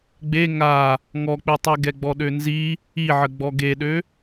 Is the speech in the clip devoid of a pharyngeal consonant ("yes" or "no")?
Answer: no